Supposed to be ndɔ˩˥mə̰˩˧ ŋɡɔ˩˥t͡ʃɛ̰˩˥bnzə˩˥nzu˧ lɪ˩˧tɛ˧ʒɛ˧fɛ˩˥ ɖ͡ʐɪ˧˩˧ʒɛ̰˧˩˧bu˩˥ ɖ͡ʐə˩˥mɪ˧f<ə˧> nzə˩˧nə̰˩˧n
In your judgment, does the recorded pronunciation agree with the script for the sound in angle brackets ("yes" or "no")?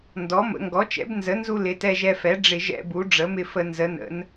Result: no